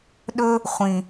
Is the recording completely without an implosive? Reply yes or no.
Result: no